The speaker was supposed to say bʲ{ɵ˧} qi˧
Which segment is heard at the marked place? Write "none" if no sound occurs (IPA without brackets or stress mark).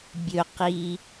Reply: ɵ˧